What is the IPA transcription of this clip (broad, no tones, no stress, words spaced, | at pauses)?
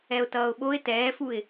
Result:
ɛʊ̯tʌːʊ̯ɓoɪ̯ tɛːfuɪ̯